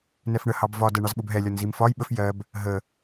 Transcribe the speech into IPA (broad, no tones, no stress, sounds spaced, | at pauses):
n ɛ f ɳ ə h ɑ b v ɒ d ɛ ɳ ɑ z ɓ ʊ b ɦ ɛ lʲ ɒ n z i m f ɒ j ɓ ə f j ɜ b | ɦ ə